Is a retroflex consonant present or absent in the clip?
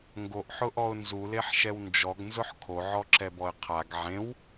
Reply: absent